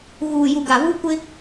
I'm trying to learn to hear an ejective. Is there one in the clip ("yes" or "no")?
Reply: no